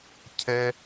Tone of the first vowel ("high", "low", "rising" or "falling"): high